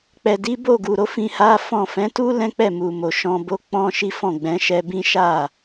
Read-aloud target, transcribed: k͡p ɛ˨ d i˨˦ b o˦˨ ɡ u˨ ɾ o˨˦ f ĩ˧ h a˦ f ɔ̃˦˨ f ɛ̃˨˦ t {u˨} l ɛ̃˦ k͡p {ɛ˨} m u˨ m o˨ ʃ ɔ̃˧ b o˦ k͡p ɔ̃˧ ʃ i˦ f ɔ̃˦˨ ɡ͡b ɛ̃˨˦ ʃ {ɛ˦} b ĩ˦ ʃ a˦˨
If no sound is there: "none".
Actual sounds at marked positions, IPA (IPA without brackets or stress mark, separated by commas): u˦, ɛ˦˨, ɛ˧